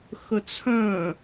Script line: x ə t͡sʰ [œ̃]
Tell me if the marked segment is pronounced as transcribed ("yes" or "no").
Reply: yes